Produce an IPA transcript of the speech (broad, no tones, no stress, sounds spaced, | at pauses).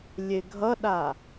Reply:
lʲ e ɡʱ ʌ ɗ a